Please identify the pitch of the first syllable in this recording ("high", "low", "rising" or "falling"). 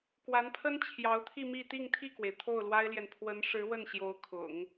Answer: rising